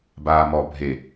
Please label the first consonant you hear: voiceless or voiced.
voiced